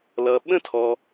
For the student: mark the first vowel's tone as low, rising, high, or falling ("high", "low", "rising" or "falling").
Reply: low